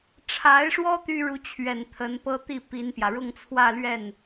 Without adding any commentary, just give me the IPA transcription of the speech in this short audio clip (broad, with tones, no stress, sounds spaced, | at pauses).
ʈ͡ʂʰ a˧˥ ɪ̯ ʂ w ɔ˥ t̪ y˥ ɻ u˧˥ t͡ɕʰ ɥ ɛ˨˩ n t̪ʰ ə˧˥ n p ɤ˥ t̪ i˥˩ p i˥ n p j ä˨ ɻ ʊ˥˧ ŋ t͡sʰ w ä˥˧ l ɥ ɛ˥˩ n